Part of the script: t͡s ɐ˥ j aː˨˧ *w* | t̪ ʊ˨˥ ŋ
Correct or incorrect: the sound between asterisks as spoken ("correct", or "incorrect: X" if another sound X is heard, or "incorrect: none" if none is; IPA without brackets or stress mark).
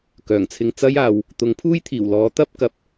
correct